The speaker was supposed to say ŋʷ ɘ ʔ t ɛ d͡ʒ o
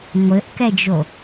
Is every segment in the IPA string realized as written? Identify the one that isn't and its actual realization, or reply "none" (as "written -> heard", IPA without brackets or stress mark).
t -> k